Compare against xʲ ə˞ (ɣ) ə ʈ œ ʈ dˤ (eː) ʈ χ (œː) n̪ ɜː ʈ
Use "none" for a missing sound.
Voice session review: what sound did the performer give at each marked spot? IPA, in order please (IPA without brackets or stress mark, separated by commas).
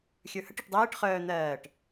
h, eː, œː